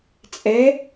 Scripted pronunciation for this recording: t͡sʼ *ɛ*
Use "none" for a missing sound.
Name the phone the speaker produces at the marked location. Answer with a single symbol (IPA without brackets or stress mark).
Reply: ɛ